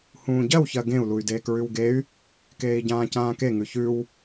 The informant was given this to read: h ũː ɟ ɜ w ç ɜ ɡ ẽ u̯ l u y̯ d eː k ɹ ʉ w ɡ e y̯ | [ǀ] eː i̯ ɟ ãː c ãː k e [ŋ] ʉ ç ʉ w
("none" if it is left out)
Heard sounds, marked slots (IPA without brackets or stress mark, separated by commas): k, ŋ